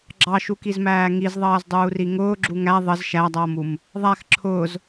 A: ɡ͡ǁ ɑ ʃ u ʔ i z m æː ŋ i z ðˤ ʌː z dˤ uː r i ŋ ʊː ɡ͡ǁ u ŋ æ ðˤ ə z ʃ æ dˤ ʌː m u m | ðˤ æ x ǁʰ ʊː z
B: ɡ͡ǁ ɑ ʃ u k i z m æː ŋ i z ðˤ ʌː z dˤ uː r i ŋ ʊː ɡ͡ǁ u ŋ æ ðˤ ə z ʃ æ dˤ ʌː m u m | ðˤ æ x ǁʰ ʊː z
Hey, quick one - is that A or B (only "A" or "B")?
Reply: B